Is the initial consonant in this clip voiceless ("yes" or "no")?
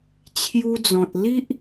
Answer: yes